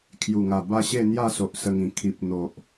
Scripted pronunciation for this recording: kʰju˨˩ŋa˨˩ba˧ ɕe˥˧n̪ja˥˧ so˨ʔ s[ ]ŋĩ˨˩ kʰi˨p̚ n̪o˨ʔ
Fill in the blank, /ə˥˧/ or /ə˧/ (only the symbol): ə˧